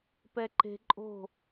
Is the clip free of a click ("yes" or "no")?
no